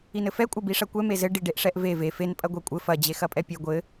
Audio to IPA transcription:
i n ɘ f ɛ kʷʼ ɐ b i ʂ ɐ kʷ ɛ m e z ɘ ɖ i ɖ e ʔ ʂ ɛ ʔ v e v e f e n pʼ ɐ ɡʷ ɛ kʷʼ ɘ f ɐ d͡ʑ e x ɐ pʼ ɛ pʲ ɛ ɡʷ ɘ

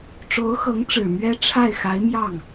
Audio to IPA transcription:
ʈ͡ʂ o˧˥ ʊ̯ x ɤ˧˥ ŋ ʈ͡ʂ ɻ̩˨˩ m ɥ ɛ˥ ʈ͡ʂʰ a˥˩ ɪ̯ x a˧˥ ɪ̯ m j ɑ˥˩ ŋ

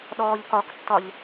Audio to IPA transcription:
ɗ ɔː ʎ k ɒ k tː ɒ ʎ

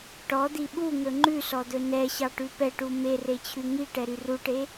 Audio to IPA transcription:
ʈ ɔ d̪ i ɓ u ŋ ɵ ŋ͡ǃ ʉ s ɔ d̪ ɵ n ɛ ɕ ɑ ʈ ʉ p ɛ ʈ u m e r e t͡ɕʰ ʉ ŋ i ʈ ɛ ɾ y r u ʈ e

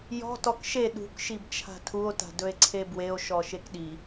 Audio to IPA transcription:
j ɔ̤ t ɔ k ʃ e ɗ ṳ k ʃ i b t͡ʃʰ a̤ tʰ u o̯ t a̤ d ɵ e̯ ǀʰ e b w e o̯ ʃ ɔ ʃ e k ɗ i

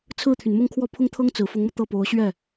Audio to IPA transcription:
t͡sʰ ɹ̩˥˩ t̪ʰ y˩ n m ʊ˥˧ ŋ kʰ w ɔ˥˩ pʰ ʊ˥ ŋ t̪ʰ ɤ˥ ŋ t͡s ɹ̩˨˩ f ʊ˧˥ ŋ m ɤ˧ t̪ ɤ˥˩ p o˧˥ ʊ̯ ɕ ɥ ɛ˥˩

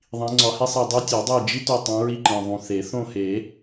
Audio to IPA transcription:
ðˤ ĩ˨˦ ŋ͡ǀ ɒ˨˦ h e˥ sˤ e˦˨ dˤ e˥ tʲ ɒ˨˩˦ dˤ e˦˨ d͡ʒ i˥ t o˦˨ tˤ õ˨˦ ɹ i˦˨ ǃ ẽ˨˩ ðˤ ũ˨˩ θ e˨˩˦ θ õ˦˨ h e˨˩˦

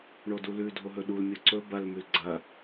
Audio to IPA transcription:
ɳ o d u l ʉ dʱ o ɦ ɵ ɗ u l mʲ o ǀ ɵ b ɐ l m ʉ l ɡ͡ǀ ɐ

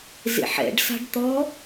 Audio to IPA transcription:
z ḛ ħ ɛ̰ ɖ s a̤ ɖ t̪ ɔ

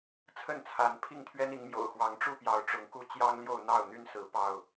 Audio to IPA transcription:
t͡sʰ ə˥˨ n t͡sʰ a˨˦ n pʰ i˥˨ ŋ t̪ʰ ɥ ɛ˦ n i˨˦ ŋ m j o̰˨˩ ʊ̯ x w ɑ˨˦ ŋ ʈ͡ʂ u˥˨ p j ɑ˨˦ ʊ̯ ʈ͡ʂ ʊ˨˦ ŋ k u˥˨ t͡ɕ j ɑ˦ ŋ l j o˥˨ ʊ̯ n̪ ɑ˥˨ ʊ̯ n̪ y˦ n s ɹ̩˨˦ p ɑ˥˨ ʊ̯

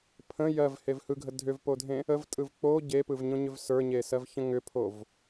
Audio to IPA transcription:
pʰ ə̃ j ɜ v h e v h ɯ ɡʱ ə dʱ ʏ v p o dʱ ẽ | ə v tʼ ɯ v k͡p o ɟ e p ɯ v ɲ õ ɲ ʏ v s ə˞ ɲ e s ɜ v ç ə̃ ŋ ʏ pʰ o v

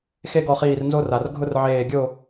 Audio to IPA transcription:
x e˦ ɡ ɔ˧˩ χ iː˧˩ r n z o˦ r a˩ r ɡʱ ʊ˦ r ʕ eː˧˩ ɡʲ o˥˨

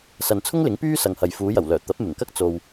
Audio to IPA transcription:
s ɐ˨ n t͡sʰ ʊ˥ ŋ l ɪ˨˥ ŋ p yː˥ s ɐ˨ ŋ h ɐ˨ j f uː˨˧ j ɐ˨˩ w l œː˨˩ t̪ ɐ˨˥ p̚ m ɪ˨˩ ŋ k ɐ˥ k̚ t͡s o˨ w

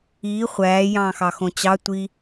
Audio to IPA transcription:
iː χʷ æː j ɑ̃ː x ɑ x õ t͡ɕ ɑ tʷ i

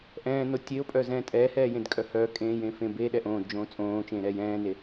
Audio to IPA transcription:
ʔ ɛ̃ː n o tʲ e o̯ pʼ œ z ɛ̃ː tʼ ɛː h ɛː j ẽ d kʼ œ h œ kʼ ẽː j ẽ f ẽ b e ɗ ɛ ʔ õː d d͡ʒ õː t͡sʼ õː t͡ʃ ẽː ɾ ɛː j ɛ̃ː n e

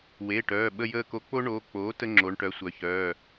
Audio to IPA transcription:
w eː˩˧˩ ʈ œː˩˧˩ ɓ ə˦˨ j əː˦˨ k o˧˥ k͡p o˥ ɳ oː˩˧˩ k͡p oː˩˥ t ə˥ ŋ͡ǁ o˩˥ ɳ ʈ œ˩˥ sʷ œ˩˥ ç œː˩˧˩

